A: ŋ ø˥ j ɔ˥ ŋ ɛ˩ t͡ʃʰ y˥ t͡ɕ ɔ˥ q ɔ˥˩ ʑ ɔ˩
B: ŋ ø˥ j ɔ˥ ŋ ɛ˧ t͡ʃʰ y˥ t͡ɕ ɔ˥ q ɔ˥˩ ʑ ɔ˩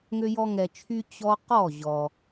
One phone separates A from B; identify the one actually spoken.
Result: B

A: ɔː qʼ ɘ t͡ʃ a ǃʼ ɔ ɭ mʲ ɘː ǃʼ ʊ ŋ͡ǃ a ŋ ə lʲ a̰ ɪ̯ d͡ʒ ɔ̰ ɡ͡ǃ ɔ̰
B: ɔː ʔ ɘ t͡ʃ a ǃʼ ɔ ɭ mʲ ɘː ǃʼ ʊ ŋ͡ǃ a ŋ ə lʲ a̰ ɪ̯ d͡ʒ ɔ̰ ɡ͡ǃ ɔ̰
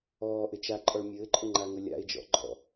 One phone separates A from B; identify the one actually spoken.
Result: B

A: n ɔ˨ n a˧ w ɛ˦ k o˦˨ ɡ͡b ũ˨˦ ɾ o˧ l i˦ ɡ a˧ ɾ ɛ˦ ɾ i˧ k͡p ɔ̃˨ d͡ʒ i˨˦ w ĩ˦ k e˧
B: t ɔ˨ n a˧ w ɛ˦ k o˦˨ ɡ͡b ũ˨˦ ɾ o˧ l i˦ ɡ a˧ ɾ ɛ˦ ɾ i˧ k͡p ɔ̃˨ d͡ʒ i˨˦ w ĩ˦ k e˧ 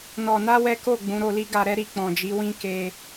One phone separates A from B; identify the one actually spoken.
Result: A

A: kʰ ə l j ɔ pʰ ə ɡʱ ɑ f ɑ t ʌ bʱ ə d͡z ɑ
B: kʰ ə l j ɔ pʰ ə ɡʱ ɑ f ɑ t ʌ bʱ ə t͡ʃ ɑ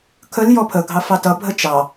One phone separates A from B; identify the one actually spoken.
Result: B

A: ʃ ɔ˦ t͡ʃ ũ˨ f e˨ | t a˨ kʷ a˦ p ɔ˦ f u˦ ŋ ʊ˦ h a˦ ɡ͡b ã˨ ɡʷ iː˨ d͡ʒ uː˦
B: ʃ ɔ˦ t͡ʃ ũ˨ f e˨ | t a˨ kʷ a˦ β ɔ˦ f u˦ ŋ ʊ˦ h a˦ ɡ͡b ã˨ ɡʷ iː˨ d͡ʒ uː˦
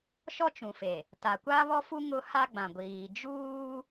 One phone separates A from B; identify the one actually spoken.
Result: B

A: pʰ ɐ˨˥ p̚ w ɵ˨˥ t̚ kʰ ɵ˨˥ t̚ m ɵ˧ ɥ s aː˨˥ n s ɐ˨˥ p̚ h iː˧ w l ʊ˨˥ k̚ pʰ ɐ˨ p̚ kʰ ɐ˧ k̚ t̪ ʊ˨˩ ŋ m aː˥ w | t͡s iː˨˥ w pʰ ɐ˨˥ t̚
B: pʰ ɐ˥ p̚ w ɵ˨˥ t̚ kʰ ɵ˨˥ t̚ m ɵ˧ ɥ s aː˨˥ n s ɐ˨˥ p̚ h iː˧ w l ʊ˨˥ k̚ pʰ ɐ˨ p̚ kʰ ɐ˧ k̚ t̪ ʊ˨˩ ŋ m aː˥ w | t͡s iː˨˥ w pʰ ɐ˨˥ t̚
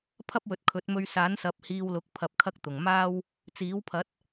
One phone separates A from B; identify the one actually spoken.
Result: B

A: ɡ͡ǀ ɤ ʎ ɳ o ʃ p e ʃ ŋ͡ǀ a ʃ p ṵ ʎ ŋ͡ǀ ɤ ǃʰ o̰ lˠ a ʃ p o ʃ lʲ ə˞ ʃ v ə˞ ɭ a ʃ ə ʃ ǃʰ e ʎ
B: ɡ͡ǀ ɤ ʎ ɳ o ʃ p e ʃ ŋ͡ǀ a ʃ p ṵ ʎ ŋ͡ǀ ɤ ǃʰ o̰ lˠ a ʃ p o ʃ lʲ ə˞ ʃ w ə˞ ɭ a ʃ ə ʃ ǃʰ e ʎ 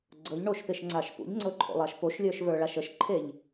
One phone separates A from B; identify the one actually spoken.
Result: A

